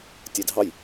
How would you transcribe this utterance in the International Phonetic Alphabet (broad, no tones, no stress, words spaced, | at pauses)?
tʲedʱɑj